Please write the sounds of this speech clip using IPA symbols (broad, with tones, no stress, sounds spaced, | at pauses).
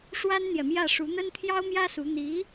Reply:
ʂ w a˥ n n̪ j ɛ˨ m j ä˥˩ ʂ u˧˥ n̪ ə˥ n t̪ʰ j ɑ˥ ʊ̯ m j ä˥ s u˧˥ n̪ i˧˥